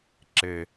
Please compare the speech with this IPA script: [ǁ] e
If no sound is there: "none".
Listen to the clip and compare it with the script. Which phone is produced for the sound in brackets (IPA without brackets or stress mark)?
ǁ